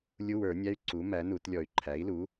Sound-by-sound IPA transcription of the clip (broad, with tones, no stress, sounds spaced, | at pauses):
lʲ u˧˥˧ w ə˞˨˩˦ nʲ æ˧˥˧ y̯ ǀ u˩˥ m æ˩˥ n u˨˩˦ t lʲ ɔ˨˩˦ y̯ ǃʰ æ˩˥ i̯ l u˩˥